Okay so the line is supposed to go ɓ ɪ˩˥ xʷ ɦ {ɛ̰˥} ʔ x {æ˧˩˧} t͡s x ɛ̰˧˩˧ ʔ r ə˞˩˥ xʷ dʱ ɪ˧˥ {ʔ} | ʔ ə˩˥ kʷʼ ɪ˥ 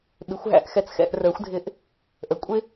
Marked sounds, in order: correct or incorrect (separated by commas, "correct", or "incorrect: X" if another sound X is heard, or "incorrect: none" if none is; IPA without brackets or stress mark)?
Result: incorrect: æ̰˥, incorrect: ɛ˧˩˧, correct